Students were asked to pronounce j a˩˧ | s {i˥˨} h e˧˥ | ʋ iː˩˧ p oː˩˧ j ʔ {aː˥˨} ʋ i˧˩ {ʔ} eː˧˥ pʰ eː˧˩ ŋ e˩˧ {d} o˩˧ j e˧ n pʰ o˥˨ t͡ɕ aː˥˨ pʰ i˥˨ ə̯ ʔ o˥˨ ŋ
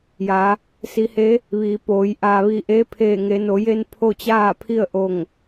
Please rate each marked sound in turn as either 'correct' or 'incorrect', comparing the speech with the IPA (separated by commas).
incorrect, incorrect, correct, incorrect